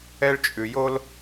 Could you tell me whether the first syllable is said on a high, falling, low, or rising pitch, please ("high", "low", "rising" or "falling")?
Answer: high